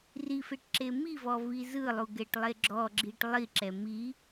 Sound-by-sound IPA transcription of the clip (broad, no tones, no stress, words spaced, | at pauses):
rifeʈ ǁemivɔ vizɯlˠu ɡɛʈlˠeɡ͡ǁɔɡ͡ǁiʈ lˠiǁɛ mi